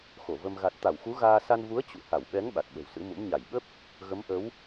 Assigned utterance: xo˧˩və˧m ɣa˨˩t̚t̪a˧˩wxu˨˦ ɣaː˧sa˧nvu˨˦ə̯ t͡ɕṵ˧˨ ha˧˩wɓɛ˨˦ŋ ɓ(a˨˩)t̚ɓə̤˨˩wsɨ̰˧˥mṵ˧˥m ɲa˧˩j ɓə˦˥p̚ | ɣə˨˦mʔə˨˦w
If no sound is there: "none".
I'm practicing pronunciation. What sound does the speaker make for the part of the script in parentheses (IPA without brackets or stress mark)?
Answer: a˨˩